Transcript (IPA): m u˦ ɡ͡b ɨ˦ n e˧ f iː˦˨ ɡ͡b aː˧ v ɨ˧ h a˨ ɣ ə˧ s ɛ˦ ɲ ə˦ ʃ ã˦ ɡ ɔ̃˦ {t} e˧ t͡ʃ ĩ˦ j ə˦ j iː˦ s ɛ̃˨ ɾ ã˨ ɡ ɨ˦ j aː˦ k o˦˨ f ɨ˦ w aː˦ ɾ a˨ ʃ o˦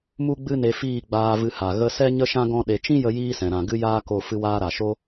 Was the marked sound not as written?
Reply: yes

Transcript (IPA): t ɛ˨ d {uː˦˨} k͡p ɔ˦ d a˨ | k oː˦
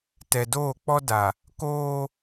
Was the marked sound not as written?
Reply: yes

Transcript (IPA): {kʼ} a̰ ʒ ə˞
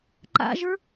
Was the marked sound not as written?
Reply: yes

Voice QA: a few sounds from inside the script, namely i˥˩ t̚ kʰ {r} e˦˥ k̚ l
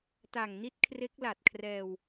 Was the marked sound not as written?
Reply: no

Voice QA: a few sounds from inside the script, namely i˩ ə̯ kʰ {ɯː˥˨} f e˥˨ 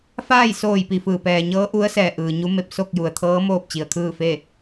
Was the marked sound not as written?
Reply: no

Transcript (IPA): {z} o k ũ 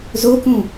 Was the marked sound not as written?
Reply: no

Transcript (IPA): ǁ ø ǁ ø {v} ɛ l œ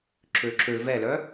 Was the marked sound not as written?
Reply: no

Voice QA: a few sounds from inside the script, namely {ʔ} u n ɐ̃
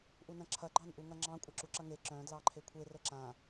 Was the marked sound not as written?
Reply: no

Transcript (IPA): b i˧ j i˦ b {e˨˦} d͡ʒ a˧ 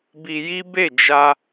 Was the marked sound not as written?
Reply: yes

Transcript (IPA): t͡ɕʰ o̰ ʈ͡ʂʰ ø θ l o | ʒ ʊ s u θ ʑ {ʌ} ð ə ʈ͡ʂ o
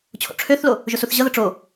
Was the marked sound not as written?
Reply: no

